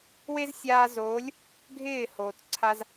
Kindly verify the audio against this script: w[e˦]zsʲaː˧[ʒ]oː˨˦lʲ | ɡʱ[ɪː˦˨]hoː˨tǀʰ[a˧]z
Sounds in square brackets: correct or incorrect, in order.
correct, incorrect, correct, correct

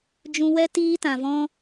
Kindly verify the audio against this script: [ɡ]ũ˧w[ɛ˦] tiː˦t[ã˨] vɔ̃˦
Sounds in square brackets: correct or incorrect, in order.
incorrect, correct, correct

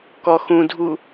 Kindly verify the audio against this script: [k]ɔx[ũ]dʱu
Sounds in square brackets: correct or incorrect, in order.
correct, correct

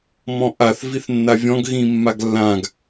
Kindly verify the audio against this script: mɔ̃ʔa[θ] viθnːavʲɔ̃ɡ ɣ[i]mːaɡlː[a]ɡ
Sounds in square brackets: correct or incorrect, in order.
correct, incorrect, incorrect

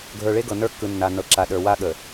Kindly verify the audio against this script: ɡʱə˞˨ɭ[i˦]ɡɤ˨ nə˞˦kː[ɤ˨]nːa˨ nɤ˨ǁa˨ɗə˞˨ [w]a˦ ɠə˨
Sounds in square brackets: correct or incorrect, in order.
incorrect, incorrect, correct

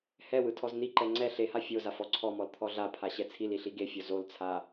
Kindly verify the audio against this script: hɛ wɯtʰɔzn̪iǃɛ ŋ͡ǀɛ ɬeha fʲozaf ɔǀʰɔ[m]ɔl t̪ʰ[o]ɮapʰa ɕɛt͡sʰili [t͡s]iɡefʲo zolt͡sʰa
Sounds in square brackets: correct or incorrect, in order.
correct, incorrect, incorrect

